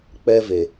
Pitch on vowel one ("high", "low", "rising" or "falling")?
high